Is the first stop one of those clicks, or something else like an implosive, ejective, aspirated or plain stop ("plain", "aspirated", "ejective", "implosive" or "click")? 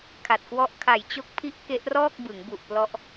aspirated